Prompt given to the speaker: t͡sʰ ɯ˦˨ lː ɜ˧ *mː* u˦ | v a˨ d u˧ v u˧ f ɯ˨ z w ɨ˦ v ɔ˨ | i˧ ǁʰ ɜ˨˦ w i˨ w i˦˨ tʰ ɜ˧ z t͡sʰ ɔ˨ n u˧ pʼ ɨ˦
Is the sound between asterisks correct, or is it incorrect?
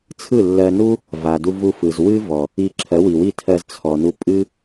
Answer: incorrect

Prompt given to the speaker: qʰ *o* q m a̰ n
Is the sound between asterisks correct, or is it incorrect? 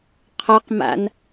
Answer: incorrect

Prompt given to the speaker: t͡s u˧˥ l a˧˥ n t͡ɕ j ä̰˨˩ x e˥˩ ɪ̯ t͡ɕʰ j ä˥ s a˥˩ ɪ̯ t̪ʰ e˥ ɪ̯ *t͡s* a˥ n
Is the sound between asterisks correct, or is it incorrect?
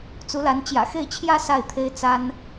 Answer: correct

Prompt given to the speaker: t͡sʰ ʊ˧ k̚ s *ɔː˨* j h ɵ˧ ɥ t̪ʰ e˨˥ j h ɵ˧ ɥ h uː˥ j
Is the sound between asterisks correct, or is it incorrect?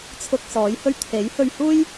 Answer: incorrect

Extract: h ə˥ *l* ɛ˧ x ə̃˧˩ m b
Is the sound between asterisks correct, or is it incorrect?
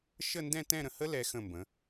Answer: correct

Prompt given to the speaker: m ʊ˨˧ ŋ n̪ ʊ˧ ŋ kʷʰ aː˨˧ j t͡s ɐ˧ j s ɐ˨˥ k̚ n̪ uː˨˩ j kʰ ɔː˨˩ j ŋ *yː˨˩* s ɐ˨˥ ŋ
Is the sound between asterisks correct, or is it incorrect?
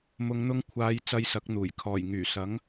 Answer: correct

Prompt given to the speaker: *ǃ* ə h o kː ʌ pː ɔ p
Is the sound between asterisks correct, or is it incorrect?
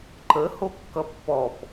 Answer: correct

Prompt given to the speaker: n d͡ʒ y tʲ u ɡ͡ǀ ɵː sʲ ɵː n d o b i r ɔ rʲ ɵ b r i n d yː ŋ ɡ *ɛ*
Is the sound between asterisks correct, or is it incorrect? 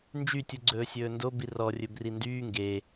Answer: incorrect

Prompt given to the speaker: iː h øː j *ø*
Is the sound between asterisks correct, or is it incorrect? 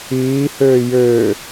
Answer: incorrect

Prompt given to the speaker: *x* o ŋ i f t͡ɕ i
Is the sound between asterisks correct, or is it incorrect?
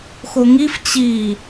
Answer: correct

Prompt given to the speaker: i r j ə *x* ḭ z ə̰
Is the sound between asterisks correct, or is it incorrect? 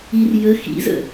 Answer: correct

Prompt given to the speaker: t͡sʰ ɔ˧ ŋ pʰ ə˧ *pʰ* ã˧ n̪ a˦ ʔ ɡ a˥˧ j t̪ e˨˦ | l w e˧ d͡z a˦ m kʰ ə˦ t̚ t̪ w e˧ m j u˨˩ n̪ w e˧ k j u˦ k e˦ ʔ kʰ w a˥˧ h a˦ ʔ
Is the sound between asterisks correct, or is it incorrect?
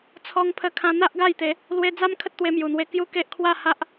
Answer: incorrect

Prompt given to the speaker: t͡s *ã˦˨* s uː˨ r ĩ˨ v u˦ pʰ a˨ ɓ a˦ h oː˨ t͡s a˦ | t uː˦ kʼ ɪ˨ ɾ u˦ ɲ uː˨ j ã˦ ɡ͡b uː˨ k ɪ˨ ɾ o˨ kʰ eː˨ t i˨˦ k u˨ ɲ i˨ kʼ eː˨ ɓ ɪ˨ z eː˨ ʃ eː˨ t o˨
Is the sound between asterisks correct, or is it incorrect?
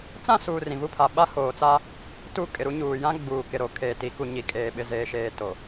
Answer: correct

